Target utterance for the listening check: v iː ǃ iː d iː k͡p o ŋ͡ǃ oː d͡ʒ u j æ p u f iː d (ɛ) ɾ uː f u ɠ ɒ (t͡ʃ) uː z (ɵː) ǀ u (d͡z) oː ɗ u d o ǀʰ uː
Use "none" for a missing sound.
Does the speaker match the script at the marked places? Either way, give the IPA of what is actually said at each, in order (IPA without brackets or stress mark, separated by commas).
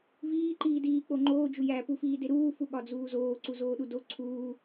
e, d͡z, oː, z